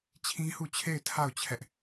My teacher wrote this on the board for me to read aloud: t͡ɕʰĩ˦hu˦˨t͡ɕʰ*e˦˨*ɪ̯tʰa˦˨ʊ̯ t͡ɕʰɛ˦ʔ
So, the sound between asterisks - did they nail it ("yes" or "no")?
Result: yes